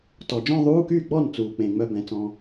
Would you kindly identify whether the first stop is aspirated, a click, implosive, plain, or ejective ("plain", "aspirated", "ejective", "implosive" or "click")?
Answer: plain